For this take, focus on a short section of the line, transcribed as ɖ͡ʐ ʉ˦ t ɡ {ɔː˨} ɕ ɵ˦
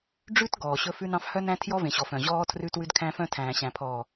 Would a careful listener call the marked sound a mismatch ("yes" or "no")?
no